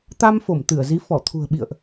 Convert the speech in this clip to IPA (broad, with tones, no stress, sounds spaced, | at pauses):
t̪ a˧ m f o˧˩ m t̪ ɨ˧˩ ə̯ z i˨˦ f ɔ˧˩ t̪ʰ ṳ˨˩ ə̯ ɓ ḭ˧˨ ə̯ ʔ